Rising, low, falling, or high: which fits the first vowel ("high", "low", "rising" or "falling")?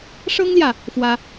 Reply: high